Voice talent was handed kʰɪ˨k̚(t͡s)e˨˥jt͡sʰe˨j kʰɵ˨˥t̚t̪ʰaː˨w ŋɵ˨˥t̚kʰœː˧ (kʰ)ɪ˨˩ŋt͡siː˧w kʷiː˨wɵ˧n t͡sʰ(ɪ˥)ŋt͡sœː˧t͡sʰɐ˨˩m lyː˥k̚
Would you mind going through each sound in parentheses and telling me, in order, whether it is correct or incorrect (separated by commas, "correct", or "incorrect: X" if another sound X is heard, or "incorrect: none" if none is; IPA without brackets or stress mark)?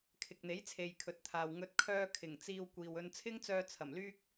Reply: incorrect: n̪, correct, correct